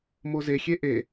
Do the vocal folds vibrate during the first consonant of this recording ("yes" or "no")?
yes